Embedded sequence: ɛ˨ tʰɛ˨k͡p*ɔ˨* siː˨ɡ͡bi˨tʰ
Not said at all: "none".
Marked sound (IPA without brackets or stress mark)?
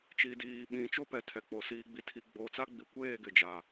o˨